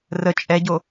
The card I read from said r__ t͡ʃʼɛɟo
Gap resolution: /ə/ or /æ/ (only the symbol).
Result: ə